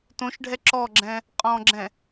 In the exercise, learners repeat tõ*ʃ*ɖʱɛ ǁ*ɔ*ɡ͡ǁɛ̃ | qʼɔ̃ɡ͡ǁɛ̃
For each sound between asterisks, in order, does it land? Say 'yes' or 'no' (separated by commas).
yes, yes